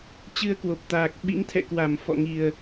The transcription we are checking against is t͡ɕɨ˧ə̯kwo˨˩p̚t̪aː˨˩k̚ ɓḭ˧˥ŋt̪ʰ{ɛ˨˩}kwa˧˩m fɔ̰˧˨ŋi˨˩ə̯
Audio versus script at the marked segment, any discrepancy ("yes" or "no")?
yes